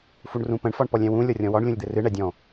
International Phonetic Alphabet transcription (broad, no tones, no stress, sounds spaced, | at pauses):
f u ɳ r ũ p ə̃ ɳ f ɒ ɳ p ɔ lʲ ɛ̃ w ũ lʲ ɔ rʲ ɔ̃ w ɒ ɳ lʲ ũ lʲ d̪ ɘ r ɨ ɳ ɛ dʲ ɔ̃